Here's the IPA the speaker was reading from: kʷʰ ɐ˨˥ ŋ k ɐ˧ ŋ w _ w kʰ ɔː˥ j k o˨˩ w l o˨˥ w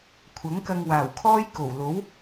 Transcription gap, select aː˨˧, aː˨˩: aː˨˩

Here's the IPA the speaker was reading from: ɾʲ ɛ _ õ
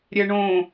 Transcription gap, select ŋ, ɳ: ɳ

